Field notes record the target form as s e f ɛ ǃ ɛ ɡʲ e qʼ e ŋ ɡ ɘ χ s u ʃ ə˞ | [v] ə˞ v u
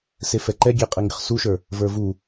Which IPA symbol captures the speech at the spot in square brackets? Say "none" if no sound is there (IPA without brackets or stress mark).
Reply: v